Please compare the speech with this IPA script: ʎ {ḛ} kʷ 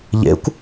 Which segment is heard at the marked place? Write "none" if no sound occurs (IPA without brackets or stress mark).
ḛ